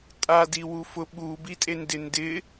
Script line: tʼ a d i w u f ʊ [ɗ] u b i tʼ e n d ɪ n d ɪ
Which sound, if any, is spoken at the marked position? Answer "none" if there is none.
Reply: ɓ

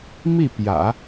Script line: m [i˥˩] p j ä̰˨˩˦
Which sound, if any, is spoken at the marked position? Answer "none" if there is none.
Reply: i˥˩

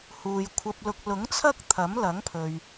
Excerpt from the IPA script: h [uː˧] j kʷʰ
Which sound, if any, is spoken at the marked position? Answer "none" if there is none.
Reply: uː˨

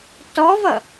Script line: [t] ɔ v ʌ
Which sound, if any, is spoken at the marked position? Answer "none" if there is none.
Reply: t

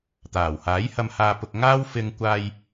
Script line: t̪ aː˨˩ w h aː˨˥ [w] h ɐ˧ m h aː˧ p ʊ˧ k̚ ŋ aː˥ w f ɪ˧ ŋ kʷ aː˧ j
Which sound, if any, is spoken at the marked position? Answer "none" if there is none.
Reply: j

